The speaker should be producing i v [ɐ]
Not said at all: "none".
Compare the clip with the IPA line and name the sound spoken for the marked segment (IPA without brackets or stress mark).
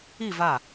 a